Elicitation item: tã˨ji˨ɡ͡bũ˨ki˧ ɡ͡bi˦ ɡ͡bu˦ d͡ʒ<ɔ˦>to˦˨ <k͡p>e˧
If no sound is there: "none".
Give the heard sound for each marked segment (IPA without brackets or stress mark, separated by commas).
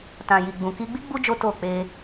o˦, k͡p